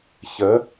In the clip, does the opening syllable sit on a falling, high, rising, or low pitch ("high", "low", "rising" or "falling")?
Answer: rising